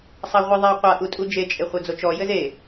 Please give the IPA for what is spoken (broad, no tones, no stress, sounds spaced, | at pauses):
sˤ a ʁʷ i ðˤ ɛ u̯ qʷ a ʔ u tʼ u d͡ʒ e t͡ʃʼ e χʷ ɐ d͡z o t͡ʃ ɔ j ɘ z e